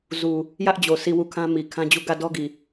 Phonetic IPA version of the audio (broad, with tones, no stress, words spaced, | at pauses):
zu˨ | jä˦ʔd͡ʑo˨ si˦˨wu˦˨ kʰã˦mi˨ kʰã˦d͡ʑu˦˨ ɡä˦˨dɔ˦ɡi˨